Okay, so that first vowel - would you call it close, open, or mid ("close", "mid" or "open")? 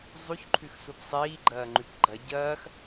close